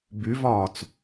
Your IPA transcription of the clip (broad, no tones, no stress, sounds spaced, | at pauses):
b y v ɒː t͡s